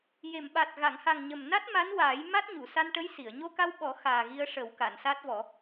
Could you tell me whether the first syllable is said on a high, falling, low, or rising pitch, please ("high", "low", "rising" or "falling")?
low